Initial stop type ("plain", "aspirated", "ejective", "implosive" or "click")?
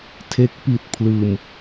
aspirated